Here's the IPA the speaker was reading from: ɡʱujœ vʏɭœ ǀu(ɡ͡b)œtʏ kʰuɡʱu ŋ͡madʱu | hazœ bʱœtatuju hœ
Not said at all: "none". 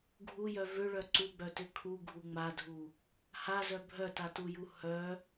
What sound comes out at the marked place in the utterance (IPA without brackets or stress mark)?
ɡ͡b